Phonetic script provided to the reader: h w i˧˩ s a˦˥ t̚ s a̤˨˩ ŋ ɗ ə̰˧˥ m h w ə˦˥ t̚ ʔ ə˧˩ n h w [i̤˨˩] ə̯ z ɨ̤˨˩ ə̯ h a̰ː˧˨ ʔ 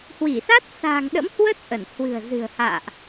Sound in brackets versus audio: incorrect: ɨ̤˨˩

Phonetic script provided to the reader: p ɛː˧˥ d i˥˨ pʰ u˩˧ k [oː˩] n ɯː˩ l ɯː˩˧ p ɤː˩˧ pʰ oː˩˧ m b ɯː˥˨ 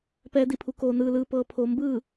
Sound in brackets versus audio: correct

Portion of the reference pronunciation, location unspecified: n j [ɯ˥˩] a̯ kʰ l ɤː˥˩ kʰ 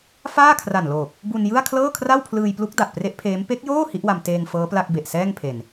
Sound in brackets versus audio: correct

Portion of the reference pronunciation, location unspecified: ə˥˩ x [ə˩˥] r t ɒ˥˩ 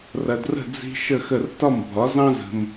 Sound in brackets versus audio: incorrect: ə˥˩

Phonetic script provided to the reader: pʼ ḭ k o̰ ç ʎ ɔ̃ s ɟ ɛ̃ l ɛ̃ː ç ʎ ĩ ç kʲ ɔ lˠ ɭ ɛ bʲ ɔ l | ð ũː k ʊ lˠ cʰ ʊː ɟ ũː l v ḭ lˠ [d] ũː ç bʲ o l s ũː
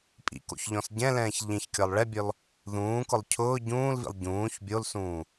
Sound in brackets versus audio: incorrect: ɟ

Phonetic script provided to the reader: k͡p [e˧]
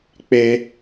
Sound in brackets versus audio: correct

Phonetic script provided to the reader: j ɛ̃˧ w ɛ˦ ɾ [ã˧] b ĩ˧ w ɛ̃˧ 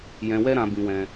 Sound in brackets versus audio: correct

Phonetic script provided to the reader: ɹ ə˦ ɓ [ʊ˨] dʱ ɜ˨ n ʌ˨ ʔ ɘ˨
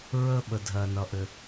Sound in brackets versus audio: incorrect: ə˨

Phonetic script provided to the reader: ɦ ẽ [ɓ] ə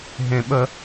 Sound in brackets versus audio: correct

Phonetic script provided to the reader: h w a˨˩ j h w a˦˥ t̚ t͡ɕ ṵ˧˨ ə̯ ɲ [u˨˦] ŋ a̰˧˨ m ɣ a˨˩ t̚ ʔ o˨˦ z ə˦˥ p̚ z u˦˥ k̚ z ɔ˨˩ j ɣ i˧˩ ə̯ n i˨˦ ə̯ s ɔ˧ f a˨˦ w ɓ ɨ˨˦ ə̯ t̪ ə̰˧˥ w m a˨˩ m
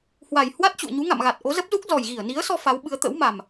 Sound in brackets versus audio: correct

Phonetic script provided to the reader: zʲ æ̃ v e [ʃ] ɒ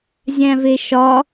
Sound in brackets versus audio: correct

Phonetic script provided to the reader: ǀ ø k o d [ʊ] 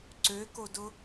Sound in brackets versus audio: correct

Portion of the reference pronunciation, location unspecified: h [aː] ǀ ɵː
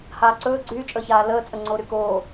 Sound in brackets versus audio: correct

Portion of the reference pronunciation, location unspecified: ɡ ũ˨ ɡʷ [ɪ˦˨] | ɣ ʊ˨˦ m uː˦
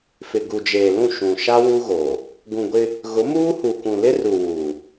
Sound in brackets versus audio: incorrect: ɪ˦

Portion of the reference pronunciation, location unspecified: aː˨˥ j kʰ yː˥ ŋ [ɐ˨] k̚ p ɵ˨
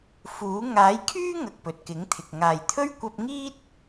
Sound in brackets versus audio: correct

